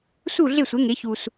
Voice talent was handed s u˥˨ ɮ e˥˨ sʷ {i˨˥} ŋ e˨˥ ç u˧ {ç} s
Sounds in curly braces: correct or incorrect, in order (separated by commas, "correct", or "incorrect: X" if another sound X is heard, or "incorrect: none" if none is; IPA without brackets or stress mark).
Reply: incorrect: e˨˥, incorrect: none